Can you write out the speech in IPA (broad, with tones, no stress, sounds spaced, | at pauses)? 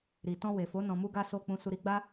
ɾ i˨ t ɔ̃˧ w e˨ f o˨˦ n ɔ̃˧ m u˦ ɡ a˦ s o˦˨ k͡p ũ˧ s u˧ ɾ i˦ ɡ͡b a˦